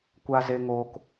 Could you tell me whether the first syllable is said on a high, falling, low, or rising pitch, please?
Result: high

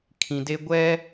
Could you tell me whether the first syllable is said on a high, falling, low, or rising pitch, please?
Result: low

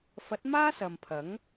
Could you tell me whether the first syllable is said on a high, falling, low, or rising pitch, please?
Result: rising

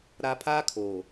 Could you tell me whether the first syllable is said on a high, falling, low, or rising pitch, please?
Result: low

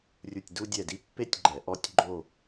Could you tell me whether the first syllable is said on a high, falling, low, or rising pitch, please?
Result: falling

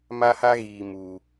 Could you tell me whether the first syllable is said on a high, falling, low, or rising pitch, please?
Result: high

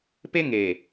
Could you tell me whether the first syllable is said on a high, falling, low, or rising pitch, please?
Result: high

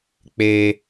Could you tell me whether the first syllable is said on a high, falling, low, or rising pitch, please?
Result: high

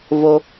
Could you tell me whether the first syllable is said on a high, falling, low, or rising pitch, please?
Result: low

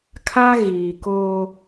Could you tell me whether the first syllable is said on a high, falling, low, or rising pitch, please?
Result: high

